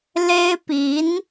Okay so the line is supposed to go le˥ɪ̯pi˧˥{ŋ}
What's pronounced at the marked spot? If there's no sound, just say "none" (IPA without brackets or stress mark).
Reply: n